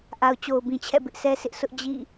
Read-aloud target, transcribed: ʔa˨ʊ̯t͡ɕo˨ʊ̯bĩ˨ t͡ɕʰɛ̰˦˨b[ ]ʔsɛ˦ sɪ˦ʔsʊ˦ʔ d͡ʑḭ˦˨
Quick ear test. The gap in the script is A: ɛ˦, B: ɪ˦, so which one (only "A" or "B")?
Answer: B